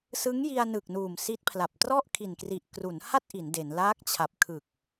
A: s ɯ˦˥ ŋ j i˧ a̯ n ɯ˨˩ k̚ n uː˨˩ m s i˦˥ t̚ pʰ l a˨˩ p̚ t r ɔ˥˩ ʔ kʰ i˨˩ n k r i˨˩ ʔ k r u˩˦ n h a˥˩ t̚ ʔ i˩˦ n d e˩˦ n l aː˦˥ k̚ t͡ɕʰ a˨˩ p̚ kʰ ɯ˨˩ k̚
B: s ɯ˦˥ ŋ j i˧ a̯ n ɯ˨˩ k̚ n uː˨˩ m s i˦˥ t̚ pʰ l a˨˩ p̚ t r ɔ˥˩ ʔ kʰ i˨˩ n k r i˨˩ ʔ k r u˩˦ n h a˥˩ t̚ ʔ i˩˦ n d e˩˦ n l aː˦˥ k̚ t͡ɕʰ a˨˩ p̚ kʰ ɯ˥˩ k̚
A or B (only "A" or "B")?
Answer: A